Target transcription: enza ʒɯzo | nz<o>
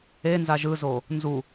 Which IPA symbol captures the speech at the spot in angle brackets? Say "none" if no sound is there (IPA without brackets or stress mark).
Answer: u